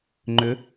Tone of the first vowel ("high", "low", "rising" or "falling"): rising